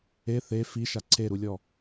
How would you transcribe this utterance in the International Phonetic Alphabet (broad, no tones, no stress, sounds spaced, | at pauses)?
e θ e f i ʃ a ǀʰ e ɾ u lʲ ɔ